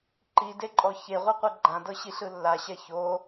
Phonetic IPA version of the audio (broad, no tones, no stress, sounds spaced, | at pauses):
ǃ i d e ǃʼ ɔ ç e ʁʷ ɯ qʷ ɯ ɡ͡ǃ ã d ɤ ɕ i ɬ ɯ lː a ɕ ɛ ç o